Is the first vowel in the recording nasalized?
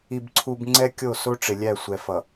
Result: no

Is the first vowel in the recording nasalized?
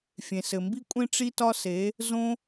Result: yes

